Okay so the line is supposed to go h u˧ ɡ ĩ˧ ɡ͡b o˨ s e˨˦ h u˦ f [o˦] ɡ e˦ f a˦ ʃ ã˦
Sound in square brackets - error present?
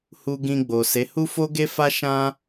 no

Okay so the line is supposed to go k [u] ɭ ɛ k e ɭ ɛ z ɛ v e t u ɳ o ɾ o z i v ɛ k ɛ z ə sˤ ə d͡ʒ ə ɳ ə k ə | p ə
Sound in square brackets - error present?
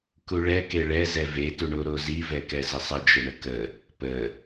no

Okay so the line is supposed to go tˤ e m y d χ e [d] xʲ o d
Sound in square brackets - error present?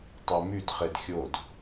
no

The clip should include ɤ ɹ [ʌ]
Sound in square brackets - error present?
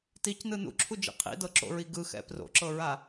yes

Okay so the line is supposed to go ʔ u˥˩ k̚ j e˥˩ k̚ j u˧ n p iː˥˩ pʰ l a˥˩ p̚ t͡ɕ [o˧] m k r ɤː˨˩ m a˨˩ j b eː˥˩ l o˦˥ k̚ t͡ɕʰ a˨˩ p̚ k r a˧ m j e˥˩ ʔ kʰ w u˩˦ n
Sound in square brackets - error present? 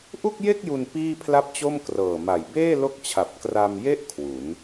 yes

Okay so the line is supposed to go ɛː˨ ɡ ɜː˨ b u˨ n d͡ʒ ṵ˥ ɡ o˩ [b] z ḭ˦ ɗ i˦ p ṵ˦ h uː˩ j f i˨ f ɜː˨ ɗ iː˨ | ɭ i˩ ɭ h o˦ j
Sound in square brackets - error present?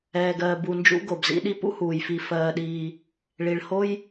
no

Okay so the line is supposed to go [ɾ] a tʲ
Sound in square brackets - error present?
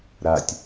no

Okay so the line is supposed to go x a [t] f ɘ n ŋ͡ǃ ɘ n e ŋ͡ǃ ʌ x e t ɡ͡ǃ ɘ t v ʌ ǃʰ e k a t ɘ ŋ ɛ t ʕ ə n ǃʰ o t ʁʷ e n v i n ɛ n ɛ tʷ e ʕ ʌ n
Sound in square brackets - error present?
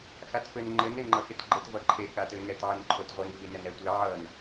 no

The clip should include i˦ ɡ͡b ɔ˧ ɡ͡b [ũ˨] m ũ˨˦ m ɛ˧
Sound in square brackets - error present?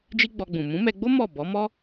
no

